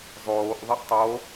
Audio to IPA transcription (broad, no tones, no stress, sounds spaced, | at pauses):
zˤ oː ʔ ðˤ ə ʔ tˤ o